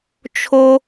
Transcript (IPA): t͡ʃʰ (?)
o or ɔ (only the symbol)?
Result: o